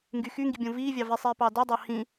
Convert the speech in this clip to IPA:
ŋ ɡ y x y ŋ ɡ i bʲ õ v iː vʲ ɑ v i sˤ iː p ɑː d o dˤ ɑ h ĩ

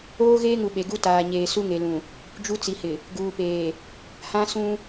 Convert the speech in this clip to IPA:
oː˦ ɣ eː˦ ŋ u˨ ɓ e˨ ɡ u˦ t aː˨ ɲ eː˨ s u˦ ŋ e˨ l ũ˨ | d͡ʒ u˦ t͡s i˨ h ɪ˨ | ɡ uː˨ p eː˨ | h ã˦ s ũ˦

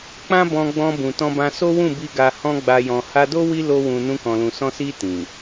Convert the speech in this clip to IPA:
k͡p ã˦ b ɔ̃˧ ɡ͡b ɔ̃˧ b ũ˨ t ɔ̃˧ b ã˧ s o˦ w ũ˦˨ b i˧ ɡ a˧ h ɔ̃˦ ɡ͡b a˧ j ɔ̃˨ h a˧ d o˦ w i˦ l o˧ w ũ˨ n ũ˧ k ɔ̃˨ l ũ˨ s ɔ̃˧ s i˧ t ĩ˨

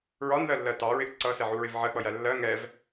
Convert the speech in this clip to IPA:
ɹ ɒ n ð ɜ lː ɜ t ɑ ɹ ɪ ʔ ǀ ʌ s ɛ ʕ u ɹ ɪ v ʕ ɜ k͡p ʌ j æ lː ɜ ŋ ɛ v

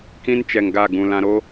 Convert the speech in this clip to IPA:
k ĩ˦ n t͡ʃ ɛ˨ ŋ ɡ a˦˨ ɡ ũ˨ l ã˨ ɾ o˦

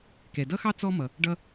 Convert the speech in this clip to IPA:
k ɛ˩ d ʌ˥ x ɑ˥ t͡s ɔ˥ m ʌ˩ | ɖ ʌ˥

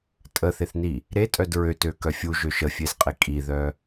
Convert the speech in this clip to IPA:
tʼ ə θ e θ n i | ɾ e tʼ œ d ɹ ø t ø k œ fʲ u ʒ ø ʃ ə fʲ e z qʼ e kʼ i ð œ

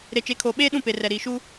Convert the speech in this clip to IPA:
ɾ e˨ t͡ʃ e˨˦ kʰ oː˨ ɓ eː˦ ɗ ũ˦˨ p e˨ r ɛ˨ ɾ iː˨ ʃ u˦

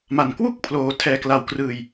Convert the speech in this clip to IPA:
m a˨˩ n k w u˥˩ k̚ pʰ l oː˧ tʰ ɛː˧ k l a˧ w k r ɯː˧ j

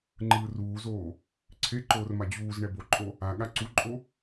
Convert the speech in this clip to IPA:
ŋ͡ǃ ɯː r uː z oː | ǀʰ e ǃ oː r m a d͡ʑ uː z ɳ ɛ b o ǃʼ o | a ɠ a ǀ u ǃʼ o

